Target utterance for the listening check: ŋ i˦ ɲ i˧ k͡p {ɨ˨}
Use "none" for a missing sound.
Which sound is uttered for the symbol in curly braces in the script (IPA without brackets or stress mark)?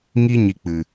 ɨ˨